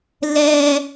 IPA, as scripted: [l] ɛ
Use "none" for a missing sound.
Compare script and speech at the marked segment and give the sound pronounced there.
l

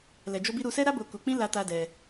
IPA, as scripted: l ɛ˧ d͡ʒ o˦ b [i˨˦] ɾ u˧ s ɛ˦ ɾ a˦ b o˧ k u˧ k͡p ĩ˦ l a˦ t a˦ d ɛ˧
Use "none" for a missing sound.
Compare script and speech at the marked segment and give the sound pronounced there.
i˦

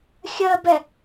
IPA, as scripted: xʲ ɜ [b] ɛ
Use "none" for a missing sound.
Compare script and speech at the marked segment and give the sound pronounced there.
b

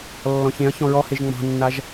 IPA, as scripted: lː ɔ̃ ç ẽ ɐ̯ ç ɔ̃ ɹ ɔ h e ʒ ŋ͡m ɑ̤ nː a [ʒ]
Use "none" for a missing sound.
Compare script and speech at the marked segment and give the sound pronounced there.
ʒ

